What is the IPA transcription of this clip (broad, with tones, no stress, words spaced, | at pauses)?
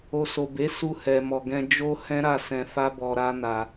o˨so˨be˨˦ su˧hɛ˨mɔ˨ ɡɛ̃˧d͡ʒo˦hɛ̃˦ ɾa˦˨sɛ̃˧fa˦bɔ˧ ɾa˦na˧